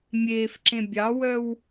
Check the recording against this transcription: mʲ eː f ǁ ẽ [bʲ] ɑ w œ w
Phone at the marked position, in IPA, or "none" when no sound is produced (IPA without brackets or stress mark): bʲ